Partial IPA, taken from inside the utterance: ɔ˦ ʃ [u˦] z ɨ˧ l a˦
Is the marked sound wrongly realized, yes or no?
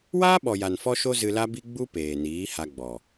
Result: yes